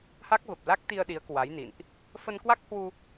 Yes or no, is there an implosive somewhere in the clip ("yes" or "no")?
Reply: yes